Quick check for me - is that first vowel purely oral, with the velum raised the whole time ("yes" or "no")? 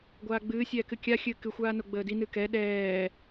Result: yes